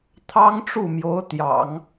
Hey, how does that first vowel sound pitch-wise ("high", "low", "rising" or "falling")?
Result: high